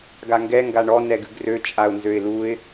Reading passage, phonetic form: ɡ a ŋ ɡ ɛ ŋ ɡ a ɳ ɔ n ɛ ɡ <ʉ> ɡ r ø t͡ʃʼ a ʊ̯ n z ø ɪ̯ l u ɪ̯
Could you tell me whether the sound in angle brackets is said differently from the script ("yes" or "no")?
no